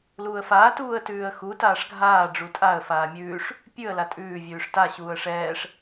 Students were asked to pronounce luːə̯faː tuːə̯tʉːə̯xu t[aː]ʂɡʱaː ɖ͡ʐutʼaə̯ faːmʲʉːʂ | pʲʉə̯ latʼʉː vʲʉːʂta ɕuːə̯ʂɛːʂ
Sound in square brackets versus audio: correct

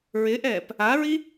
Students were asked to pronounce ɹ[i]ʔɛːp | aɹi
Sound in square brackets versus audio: incorrect: ɪ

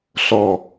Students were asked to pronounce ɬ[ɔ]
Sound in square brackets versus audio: correct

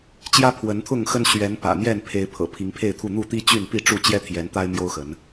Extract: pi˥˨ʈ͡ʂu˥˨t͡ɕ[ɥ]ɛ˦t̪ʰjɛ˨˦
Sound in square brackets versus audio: incorrect: j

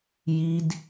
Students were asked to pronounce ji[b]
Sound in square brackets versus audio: incorrect: d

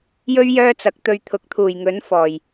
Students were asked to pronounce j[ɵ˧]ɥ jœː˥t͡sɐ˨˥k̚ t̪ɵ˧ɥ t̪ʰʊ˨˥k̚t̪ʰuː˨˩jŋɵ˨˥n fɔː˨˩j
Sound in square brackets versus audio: incorrect: ɵ˥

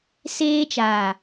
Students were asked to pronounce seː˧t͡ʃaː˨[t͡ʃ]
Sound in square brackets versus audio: incorrect: none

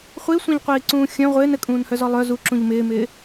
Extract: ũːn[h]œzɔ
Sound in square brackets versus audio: correct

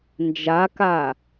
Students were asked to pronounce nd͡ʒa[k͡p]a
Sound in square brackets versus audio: incorrect: k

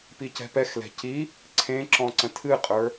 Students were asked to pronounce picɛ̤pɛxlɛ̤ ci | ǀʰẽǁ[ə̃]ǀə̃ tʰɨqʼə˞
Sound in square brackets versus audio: incorrect: ɔ̃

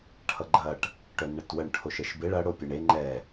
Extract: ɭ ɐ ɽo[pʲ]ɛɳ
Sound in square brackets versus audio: correct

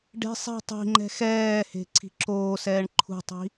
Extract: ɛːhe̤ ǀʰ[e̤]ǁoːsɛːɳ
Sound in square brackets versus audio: incorrect: i̤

